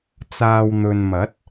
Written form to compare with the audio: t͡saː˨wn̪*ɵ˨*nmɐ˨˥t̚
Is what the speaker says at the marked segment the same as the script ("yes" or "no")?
yes